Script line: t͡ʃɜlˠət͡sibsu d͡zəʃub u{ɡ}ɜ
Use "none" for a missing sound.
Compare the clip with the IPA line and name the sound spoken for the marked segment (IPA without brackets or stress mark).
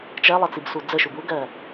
ɡ